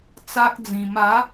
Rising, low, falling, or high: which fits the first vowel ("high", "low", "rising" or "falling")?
high